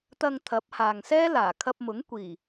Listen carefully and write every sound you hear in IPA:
t̪ɐ˨ŋ t̪ʰɐ˨˥p̚haː˨ŋsɛː˥ laː˨˩kʰɐ˧p̚mʊ˨˥ŋ kʷiː˨˩

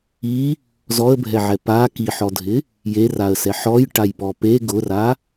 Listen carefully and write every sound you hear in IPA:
i | zɔə̯bʱɛʕɛ pa kiħɔdʱɪ | jeraə̯sɛ ħɔjʈajpɔ pe ɡʊra

